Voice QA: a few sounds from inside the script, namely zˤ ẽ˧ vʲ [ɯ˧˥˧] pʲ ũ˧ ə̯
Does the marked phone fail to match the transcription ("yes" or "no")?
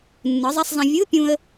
no